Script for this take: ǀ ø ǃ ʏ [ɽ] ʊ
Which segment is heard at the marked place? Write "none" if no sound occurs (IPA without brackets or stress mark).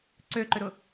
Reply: ɾ